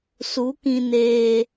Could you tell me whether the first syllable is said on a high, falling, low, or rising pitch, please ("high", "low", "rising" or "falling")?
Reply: rising